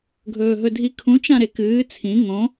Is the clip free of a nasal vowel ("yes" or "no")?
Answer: no